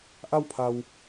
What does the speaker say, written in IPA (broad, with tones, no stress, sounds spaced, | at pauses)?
ʔ a˥˨ w pʰ a˩ w